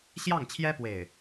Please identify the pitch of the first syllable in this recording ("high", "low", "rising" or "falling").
falling